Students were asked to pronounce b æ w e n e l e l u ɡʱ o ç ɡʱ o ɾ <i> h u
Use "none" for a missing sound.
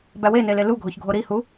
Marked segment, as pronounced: i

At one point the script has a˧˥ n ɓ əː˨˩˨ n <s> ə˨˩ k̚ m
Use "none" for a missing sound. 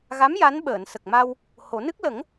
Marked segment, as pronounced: s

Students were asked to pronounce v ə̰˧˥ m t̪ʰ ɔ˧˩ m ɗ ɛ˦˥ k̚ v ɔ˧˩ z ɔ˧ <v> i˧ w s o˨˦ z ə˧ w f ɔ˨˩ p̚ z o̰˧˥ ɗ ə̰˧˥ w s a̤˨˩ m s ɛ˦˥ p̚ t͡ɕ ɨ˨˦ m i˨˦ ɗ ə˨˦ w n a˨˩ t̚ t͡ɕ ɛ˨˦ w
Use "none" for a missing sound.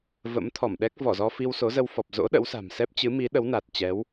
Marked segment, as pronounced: f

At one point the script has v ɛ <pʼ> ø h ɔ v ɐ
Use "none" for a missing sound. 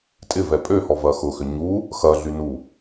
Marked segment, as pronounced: pʼ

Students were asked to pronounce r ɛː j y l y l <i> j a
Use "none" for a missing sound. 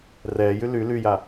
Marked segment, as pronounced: y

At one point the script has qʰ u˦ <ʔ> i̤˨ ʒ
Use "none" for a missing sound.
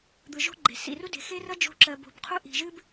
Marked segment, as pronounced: ʔ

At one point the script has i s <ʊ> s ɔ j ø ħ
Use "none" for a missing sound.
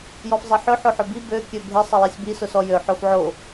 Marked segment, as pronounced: ʊ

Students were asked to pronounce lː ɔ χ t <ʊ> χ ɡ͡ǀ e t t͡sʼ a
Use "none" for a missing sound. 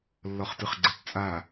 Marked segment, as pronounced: ɯ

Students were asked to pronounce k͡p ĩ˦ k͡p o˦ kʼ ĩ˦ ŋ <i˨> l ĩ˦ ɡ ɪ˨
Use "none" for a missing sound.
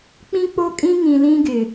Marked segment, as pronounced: ĩ˨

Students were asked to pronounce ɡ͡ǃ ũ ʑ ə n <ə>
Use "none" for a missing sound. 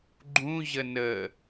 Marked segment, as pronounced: ə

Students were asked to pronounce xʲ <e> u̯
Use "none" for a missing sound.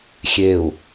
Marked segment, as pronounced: e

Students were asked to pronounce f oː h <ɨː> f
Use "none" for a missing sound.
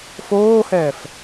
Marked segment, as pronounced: ɛː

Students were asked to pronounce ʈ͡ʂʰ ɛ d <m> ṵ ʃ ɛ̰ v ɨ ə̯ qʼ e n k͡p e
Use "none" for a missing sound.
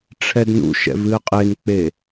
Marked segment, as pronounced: n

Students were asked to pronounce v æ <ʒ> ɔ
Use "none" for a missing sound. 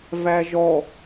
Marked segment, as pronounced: ʒ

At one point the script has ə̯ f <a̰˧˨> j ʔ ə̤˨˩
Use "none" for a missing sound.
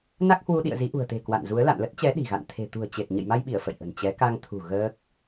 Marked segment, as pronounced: ə̰˧˨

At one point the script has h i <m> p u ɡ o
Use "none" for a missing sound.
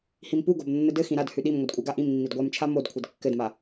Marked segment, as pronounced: m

